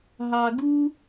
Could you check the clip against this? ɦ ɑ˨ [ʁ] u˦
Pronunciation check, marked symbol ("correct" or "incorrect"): incorrect